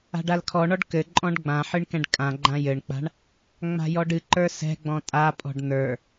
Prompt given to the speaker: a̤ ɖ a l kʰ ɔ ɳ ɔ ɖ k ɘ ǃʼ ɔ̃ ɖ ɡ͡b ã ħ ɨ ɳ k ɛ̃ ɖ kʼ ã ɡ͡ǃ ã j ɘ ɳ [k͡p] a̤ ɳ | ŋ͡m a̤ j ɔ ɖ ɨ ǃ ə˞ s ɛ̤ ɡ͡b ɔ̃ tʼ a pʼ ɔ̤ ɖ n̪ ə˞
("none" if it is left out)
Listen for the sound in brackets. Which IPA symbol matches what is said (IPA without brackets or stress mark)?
k͡p